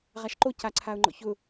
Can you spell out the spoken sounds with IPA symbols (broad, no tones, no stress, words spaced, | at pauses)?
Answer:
ʁaʃǃo caǀʰaʊ̯ŋ͡ǃɔ̰çʊ